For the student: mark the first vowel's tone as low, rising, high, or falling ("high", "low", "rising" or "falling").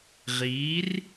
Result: rising